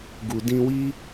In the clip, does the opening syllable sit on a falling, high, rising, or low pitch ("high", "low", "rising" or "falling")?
low